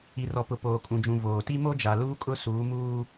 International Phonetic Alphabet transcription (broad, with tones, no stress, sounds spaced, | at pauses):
i˨ r ɔ˨ p ʊ˨ p oː˨ kʼ ũ˨ d͡ʒ ũ˨ v oː˨ t i˦ m o˦ d͡ʒ a˨ l uː˦ kʼ ʊ˦ s uː˨˦ m uː˦